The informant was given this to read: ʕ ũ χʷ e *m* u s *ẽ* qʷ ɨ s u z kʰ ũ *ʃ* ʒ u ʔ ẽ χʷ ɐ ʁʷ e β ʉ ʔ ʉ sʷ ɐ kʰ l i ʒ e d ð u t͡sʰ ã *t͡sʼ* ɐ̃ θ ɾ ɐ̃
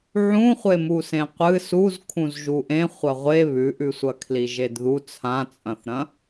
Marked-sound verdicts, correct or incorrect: correct, correct, incorrect: z, correct

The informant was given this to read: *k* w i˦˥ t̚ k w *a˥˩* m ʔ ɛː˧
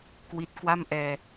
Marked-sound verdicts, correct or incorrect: correct, correct

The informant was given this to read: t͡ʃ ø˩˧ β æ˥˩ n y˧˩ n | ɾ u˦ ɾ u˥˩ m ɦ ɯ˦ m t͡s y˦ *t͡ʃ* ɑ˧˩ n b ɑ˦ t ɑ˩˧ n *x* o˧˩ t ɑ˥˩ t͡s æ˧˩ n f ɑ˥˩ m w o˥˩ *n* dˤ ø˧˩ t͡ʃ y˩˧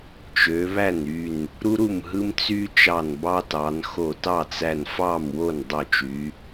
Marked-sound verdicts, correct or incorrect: correct, correct, correct

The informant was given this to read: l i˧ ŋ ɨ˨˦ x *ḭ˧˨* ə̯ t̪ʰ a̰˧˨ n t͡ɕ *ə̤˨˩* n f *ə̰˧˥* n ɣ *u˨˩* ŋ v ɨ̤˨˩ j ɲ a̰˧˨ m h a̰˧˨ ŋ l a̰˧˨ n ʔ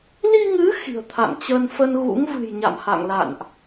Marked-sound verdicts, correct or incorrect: incorrect: i̤˨˩, incorrect: ə˧, incorrect: ə˧, incorrect: ṵ˧˥

